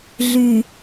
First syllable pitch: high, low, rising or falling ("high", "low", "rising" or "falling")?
low